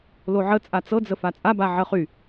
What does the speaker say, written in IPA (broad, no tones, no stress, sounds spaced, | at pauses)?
l o ʕ ə t͡sʼ a t͡s ɤ d͡z ə f a t͡sʼ a b a ʕ ə χ y